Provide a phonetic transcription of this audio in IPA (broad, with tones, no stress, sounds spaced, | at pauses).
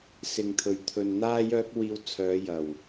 s ɪ˨ ŋ t̪ʰ ɵ˨ ɥ t̪ʰ ɵ˨ n n̪ aː˥ j œː˥ k̚ w iː˧ w t͡sʰ œː˨˧ j ɐ˨˩ w